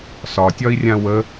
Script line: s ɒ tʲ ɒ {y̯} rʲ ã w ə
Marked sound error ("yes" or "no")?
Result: yes